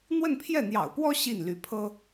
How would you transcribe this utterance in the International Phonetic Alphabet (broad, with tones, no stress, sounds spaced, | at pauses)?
n̪ w ə˥˧ n pʰ j ɛ˥˩ n̪ j ɑ̰˨˩ ʊ̯ p w ɔ˥ ɕ i˥˩ n l y˧˥ pʰ ɤ˥